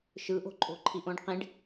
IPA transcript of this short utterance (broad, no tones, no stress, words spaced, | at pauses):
ʃɯʔo̤ǃʼo̤ǃʰiʔ õɖqĩɖ